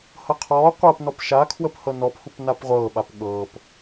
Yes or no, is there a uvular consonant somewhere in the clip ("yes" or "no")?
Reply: yes